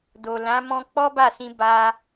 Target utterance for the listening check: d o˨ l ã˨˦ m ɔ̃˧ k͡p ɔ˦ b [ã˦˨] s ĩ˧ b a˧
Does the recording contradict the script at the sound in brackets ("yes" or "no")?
yes